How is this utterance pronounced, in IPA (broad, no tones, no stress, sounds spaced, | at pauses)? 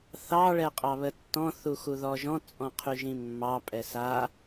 θ ɑ ɭ ɛ qʼ ɑ β ə tː ɔ̃ θ u x u ð ɔ ʒ ɔ̃ t͡sʼ ɔ̃ qʰ y ʒ ĩ mː ɑ pʼ ɛ s a